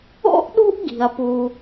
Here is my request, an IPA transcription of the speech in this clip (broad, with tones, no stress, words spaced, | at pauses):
o̰˥ʔɗṳ˥ʔ ɡi̤˩ɐ̯pu˩